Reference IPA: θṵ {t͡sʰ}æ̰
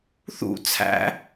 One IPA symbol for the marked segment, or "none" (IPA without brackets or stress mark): t͡sʰ